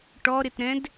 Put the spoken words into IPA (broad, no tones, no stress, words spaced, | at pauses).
ʈɔɾɪtɾɛ̃d